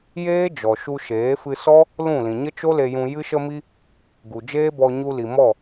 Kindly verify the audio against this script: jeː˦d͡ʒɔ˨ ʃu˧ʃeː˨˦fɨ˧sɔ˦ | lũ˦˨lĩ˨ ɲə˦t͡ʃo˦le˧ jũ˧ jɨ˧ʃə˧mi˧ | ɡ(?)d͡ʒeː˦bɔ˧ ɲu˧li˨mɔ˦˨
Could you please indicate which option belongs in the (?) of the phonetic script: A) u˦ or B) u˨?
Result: B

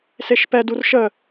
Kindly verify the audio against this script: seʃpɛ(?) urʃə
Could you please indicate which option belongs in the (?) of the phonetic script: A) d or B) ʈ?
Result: A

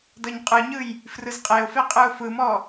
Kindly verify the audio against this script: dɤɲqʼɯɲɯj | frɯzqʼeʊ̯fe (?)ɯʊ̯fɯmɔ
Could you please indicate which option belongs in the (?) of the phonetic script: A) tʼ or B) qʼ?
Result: B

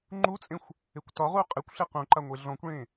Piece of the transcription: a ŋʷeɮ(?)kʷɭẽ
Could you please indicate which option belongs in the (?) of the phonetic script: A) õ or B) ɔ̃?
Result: B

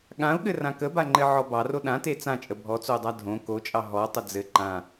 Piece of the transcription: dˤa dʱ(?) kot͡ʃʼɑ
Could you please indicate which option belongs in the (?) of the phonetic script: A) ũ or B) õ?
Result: B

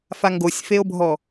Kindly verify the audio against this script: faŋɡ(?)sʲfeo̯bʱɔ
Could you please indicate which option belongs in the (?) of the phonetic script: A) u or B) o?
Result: B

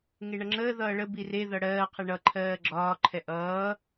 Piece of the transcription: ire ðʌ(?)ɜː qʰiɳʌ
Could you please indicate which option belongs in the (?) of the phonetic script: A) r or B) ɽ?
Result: B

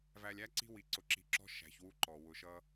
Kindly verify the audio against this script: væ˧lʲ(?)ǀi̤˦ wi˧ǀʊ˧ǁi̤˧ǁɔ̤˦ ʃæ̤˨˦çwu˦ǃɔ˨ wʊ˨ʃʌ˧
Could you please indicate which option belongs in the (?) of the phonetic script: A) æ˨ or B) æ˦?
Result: B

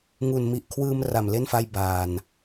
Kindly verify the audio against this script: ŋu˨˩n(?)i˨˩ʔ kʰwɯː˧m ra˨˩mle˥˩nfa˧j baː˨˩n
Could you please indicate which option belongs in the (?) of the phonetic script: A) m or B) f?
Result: A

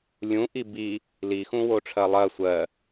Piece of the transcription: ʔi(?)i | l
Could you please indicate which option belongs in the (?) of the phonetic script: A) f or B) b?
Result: B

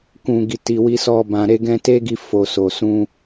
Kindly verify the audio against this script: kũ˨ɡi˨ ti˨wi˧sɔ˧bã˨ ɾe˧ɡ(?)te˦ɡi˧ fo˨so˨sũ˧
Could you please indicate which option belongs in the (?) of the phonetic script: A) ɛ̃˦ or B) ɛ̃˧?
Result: B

